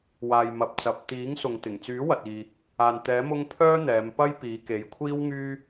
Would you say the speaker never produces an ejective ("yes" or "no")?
yes